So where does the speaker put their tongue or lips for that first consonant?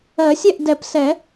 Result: tongue tip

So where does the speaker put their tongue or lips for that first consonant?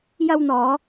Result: palate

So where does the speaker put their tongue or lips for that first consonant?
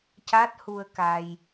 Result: palate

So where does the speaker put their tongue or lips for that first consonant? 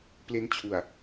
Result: lips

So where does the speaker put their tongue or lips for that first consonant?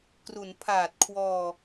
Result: velum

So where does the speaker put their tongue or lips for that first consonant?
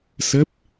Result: tongue tip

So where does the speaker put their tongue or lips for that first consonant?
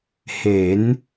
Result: throat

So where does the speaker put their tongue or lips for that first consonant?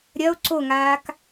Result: tongue tip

